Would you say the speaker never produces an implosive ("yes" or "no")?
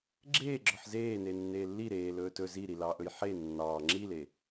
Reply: yes